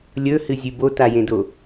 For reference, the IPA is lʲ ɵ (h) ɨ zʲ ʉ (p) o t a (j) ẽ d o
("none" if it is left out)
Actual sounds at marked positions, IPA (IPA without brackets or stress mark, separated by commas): h, b, j